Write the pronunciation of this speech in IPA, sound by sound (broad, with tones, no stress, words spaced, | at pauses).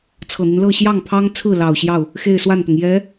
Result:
t͡sʰɤ˨˩n̪i˦nlɤ˥˧ ɕjɑ˥˩ŋpʰɑ˥ŋt͡sʰɹ̩˥˩lɑ˨˩ʊ̯ ɕjɑ˥˩ʊ̯ | xe˥˧ɪ̯swa˥˩nt̪ʊ˩ŋ jɛ˧˥